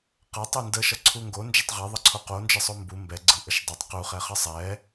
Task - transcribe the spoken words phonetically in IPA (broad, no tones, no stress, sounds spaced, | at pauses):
q ʌ tˤ ɯ n d ə ʃ ʌ ǀʰ u ŋ ɡ o n d͡ʒ ʌ tˤ ʁ ɛ ðˤ ʌ ǀʰ o q o n d͡ʒ ə sˤ o m b u m b ɛ ɡ͡ǀ ɯ ʔ ə ʃ dˤ o tˤ q u χ ɛ χ ʌ sˤ ɛ